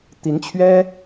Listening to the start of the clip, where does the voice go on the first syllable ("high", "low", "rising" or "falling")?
rising